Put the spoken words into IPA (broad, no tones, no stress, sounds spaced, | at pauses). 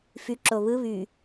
f y ǁ o β ɯ β y